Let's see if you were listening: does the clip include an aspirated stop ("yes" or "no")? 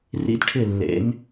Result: yes